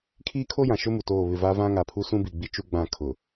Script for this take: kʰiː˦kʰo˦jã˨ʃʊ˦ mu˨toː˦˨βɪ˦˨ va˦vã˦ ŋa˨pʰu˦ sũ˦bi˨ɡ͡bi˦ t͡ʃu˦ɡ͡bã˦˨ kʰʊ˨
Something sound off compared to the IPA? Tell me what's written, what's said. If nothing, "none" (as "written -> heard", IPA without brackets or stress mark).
none